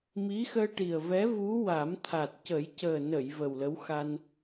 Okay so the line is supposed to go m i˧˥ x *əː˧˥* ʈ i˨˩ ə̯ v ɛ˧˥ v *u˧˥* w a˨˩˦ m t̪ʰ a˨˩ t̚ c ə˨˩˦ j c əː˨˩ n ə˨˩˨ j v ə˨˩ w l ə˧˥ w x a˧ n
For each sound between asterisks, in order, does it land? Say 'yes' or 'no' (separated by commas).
no, yes